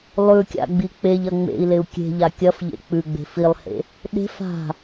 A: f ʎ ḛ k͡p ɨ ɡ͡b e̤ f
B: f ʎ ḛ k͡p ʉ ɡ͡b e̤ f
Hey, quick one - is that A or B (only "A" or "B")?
B